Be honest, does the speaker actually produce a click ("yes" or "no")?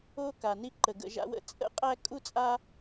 yes